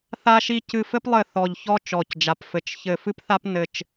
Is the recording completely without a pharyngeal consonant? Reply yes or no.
yes